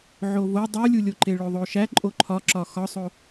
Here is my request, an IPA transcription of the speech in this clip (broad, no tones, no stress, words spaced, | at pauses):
ʕovo dˤulʲulʲoǃe ɭoðˤoʃæ ǃʼoǃʰɒǁɒ xɒsˤo